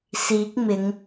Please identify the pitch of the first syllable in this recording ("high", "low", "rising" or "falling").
rising